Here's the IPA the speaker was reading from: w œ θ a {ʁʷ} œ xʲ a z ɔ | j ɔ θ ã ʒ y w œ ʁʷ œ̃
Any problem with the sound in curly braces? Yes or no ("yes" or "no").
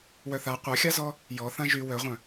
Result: yes